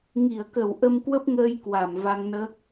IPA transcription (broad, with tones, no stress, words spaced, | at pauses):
ŋi˧˩ə̯kə˧˩w ʔə˧mkwə˦˥p̚ŋəː˧j kwa˧˩mva˧ŋnəː˦˥k̚